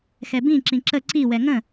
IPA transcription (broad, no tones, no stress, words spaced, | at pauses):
xɛbĩ ǁĩǁə ǀi wɛŋə̃